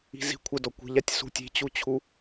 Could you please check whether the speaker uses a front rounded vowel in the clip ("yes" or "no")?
no